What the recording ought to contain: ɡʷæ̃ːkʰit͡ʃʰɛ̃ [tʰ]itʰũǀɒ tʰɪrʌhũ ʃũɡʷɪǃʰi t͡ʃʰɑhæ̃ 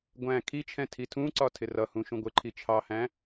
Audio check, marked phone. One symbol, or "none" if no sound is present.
tʰ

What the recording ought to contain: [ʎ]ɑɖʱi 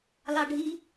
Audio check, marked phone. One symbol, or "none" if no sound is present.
l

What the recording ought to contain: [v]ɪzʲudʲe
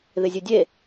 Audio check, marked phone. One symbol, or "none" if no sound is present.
ð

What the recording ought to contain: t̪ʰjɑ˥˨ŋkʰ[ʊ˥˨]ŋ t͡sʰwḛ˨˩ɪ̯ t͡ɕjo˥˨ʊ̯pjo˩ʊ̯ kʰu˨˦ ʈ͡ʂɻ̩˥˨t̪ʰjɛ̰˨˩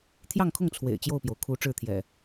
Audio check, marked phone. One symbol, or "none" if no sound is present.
ʊ˥˨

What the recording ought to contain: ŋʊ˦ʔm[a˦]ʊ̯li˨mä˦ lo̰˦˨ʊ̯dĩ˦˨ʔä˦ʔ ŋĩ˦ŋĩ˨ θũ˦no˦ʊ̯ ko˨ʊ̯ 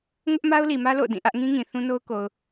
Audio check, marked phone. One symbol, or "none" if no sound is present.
a˦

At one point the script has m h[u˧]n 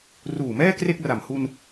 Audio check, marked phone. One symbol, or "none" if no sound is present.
u˧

